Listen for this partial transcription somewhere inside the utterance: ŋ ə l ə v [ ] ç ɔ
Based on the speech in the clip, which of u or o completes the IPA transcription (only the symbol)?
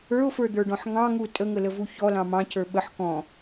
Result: u